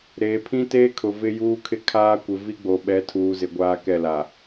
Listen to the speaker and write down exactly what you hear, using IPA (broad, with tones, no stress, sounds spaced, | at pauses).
ɾ eː˨ pʰ ĩ˦ t eː˦ kʰ ʊ˨ v ɪ˦ j uː˦ kʰ ɪ˦ kʰ aː˦ kʷ ɪ˨ v i˦ ɡ͡b o˨ ɓ ɛ˨˦ tʰ uː˨ z ɪ˨ ɡʷ aː˦ k ɛ˦˨ l a˨